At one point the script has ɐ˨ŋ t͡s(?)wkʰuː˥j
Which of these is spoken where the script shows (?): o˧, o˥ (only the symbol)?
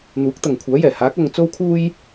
o˥